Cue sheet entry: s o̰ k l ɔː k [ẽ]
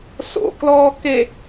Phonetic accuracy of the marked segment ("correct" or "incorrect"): incorrect